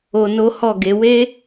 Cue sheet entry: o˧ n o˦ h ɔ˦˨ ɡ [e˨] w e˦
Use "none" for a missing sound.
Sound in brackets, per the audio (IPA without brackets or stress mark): e˨˦